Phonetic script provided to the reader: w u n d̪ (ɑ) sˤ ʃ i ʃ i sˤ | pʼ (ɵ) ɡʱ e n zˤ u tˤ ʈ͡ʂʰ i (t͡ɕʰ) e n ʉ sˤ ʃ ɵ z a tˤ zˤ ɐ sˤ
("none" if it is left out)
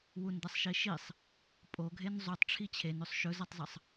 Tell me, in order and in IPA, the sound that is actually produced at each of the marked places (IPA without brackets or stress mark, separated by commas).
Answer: ɐ, o, t͡ɕʰ